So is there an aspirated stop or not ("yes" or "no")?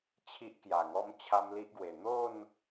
yes